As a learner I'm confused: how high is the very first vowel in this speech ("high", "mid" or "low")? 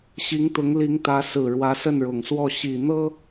high